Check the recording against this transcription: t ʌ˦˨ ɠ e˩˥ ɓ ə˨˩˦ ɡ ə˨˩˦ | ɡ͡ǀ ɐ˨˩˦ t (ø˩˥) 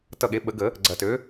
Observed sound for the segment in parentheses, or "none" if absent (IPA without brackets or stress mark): ø˩˥